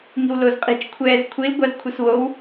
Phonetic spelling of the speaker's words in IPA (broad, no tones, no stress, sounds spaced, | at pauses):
ŋ i̤ w l o z qʼ i̤ t͡ʃ kʷʰ ɛː z kʷʰ i l ɡʷ ɑ z kʷʰ ɯ s w o w